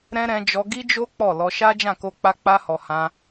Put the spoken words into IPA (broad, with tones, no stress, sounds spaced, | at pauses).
ɾ ɛ̃˦ ɾ ɛ̃˧ d͡ʒ ɔ˧ ɡ i˦ d͡ʒ o˦ k͡p ɔ˦˨ l ɔ˧ ʃ a˦ d͡ʒ ã˦˨ k o˧ k͡p a˧ k͡p a˧ h ɔ˨ h ã˧